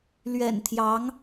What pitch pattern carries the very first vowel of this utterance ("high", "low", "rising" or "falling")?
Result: low